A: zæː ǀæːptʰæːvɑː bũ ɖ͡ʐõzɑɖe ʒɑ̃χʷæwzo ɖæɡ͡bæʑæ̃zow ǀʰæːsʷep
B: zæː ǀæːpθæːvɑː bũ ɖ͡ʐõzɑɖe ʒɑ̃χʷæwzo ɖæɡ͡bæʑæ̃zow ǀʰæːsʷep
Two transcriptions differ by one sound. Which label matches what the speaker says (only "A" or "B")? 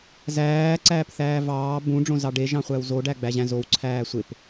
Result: B